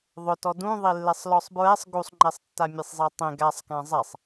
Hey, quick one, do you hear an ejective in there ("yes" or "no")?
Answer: no